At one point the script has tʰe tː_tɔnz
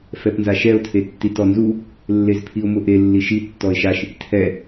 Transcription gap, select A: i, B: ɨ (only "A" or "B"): A